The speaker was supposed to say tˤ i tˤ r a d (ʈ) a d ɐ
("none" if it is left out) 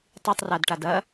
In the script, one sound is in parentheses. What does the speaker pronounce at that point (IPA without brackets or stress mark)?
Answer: ʈ